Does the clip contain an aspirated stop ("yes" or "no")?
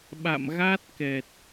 no